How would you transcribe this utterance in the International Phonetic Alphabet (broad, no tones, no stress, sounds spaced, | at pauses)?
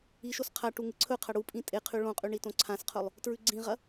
i ʃ o s qʰ a ʈ u ŋ ɨ ǀʰ ɵ qʰ ɐ ɽ u pʼ ĩ tʼ e qʰ ʉ ɭ õ qʼ ʉ ɳ i t õ ǀʰ ã s qʰ ɵ lˠ | t ɹ ʉ ɡ͡ǀ ĩ ʁ ɐ